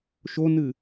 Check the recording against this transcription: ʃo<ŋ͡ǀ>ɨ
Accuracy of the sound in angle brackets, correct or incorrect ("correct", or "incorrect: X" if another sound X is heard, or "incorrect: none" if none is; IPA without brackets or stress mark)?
incorrect: n